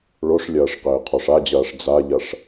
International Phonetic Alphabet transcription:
ɭ o ʂ lʲ ɐː ʂ q ɘː qʰ ɔ ʂ a d͡ʑ ɐː ʂ d͡z a ʎ ɐ ʂ

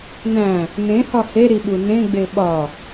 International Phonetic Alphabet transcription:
n æ̃ | n ẽ h ɒ h e ɾ i ɓ u n ẽ ɡ͡b e ɓ ɒ

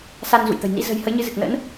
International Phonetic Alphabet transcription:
s a˧ n z ṵ˧˨ j t̪ ə̤˨˩ j n ḭ˧˥ z ə̤˨˩ j h ə˨˦ j ɲ ɨ˨˦ z ɨ˨˩ k̚ n ə̰˧˥ n

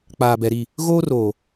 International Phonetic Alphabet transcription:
k͡p aː˨ b ɛ˨ ɾ i˦˨ | ɣ oː˦ r oː˨

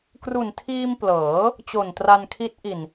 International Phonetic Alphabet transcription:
k r u˨˩ n tʰ iː˧ m p l ɤː˩˦ | t͡ɕ o˨˩ n t r a˧ n kʰ i˦˥ t̚ ʔ i˨˩ n

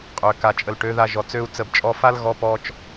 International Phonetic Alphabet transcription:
qʼ ø˨ k a˨ t͡ʃʼ ə˨ l ʈ ø˨˦ ð a˧ ʒ ɔ˨ t͡s ø˦ u̯ t͡s ə˦˨ b t͡ʃʼ ɔ˦ f a˦ l ɣ ɔ˧ p ɔ˧ t͡ʃ

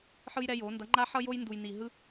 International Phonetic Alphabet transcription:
ħ ɯ˥ j ɾ ɛ˥ j o˧˥ n d ʌ˧˥ ŋ͡ǃ a˥ ħ ʌ˥ j o˥ j n d u˧ j n i˧ ɦ ɯ˥

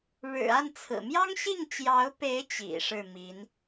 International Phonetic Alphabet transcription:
ɻ ɻ̩˨˩ a˥˩ n t͡sʰ ɹ̩˨˩ m j ɑ˥ ŋ ɕ i˥˩ ŋ t͡ɕ j ɑ˧˥ ʊ̯ p e˧˥ ɪ̯ t͡ɕ ḭ˨˩ ʂ ɻ̩˥˩ m i˧˥ n

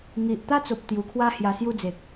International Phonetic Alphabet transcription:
ŋ i˨ ʔ t̪ a˦ t͡s o˨ p̚ t̪ j u˨˩ kʰ w a˦ h j a˧ s j u˥˧ d͡z e˨ k̚

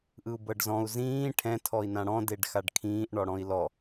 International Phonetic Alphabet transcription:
ʔ ɯ u̯ b ɤ ɖ z ɔ̃ u̯ z ĩː ʈʰ ɛ̃ tʰ ɔ i̯ n ã ɽ ɔ̃ d e ɖ x a ɖ kʰ ĩː ʔ ɳ ɔ ɽ ɔ̃ i̯ l ɔ

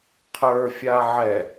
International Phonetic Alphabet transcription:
qʰ ə˞ fʲ a ʕ ɛ

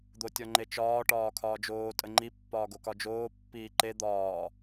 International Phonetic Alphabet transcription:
d̪ o tʲ ɔ ŋ͡ǃ e t͡ʃ ɒː ʈ ɒː kʰ ɒː d͡ʒ oː tʼ ə ŋ͡ǃ i pː ɒː ɡ o k ɒ d͡ʒ oː pː iː ǃ e d̪ ɒː

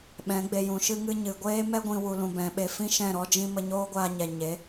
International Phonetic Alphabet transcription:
ɓ ɛ̃˨˦ ɡ͡b e˧ j ũ˨ ʃ ɨ˧ ŋ ɨ˧ ɲ ɨ˨ ɡʷ eː˦ m ɛ˦ ɡʷ ĩ˧ w u˧ l ũ˧ b ɛ̃˨˦ ɓ e˧ f ĩ˦ ʃ ɛ̃˦˨ ɾ ɔ˦ d͡ʒ ĩ˦ m ə˧ ɲ oː˦ ɡʷ aː˧ ɲ ɛ˨ ɲ e˨˦

